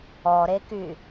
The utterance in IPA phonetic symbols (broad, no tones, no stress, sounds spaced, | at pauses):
ɔ ɾ e k y